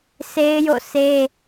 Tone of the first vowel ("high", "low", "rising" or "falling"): high